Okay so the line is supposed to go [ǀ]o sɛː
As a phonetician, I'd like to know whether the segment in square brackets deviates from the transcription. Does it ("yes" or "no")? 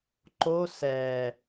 yes